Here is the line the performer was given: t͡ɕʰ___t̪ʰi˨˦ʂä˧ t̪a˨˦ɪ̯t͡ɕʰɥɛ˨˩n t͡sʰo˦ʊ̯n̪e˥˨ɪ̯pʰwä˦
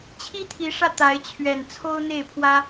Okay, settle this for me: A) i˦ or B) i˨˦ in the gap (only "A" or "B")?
A